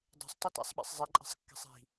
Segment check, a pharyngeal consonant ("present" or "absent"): absent